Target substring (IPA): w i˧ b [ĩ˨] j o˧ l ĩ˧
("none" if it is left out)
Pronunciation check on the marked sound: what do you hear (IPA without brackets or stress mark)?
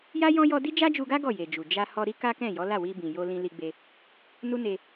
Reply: ĩ˨